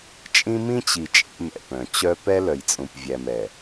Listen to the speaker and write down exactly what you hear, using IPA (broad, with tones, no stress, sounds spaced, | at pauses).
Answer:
t͡ʃʼ ĩ˦ m ĩ˦ t͡ɕ i˨ t͡ʃʼ ḛ˦ m ɛ̰˨ p œ̃˨ t͡ɕ œ˦ p ɛ˦ l œ˨ j t͡sʼ ũ˨ p vʲ æ˨ m ɛ˨